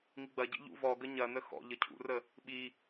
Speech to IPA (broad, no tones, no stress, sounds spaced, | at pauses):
ŋ i ɡ͡b ɐ ɟ ḭ ʎ ṵ v ɔ ɡ ə ɲ ɐ n ə x ɔ̰ ʎ ə cʰ ṵ r ə | ɓ i